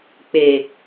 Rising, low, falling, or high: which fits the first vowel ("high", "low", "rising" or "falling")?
low